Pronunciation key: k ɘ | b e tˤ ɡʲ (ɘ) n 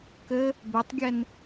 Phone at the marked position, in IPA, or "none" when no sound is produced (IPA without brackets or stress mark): ɛ